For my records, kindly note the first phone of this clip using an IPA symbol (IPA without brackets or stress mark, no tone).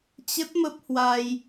t͡ɕ